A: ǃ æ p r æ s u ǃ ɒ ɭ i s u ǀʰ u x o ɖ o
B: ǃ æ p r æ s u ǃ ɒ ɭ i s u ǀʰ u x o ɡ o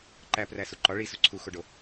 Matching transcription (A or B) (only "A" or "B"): A